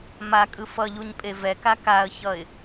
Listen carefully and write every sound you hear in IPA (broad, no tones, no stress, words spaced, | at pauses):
makʼɯ fʌʎuɲpʼe vɛka kaə̯çʌɪ̯